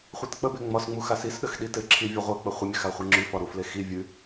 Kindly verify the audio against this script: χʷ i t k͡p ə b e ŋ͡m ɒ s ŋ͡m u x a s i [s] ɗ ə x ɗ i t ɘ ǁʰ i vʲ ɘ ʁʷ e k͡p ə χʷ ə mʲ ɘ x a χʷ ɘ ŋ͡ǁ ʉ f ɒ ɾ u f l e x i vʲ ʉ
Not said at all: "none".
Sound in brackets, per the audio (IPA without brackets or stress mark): s